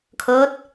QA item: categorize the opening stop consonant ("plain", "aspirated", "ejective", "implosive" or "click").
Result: aspirated